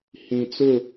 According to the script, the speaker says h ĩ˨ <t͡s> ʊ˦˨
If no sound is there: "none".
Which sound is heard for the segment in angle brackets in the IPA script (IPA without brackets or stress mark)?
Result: t͡s